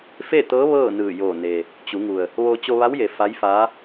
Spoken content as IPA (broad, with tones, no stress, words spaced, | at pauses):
fe˥˨t̪ɤː˧˥ ʋɤː˥˨nɯː˧˩joː˧˩ne˩ | t͡ɕu˩˧ŋu˩ə̯ | ʋo˧ t͡ɕo˧ʋa˧˥wje˩˧ fa˧˥jfaː˧˥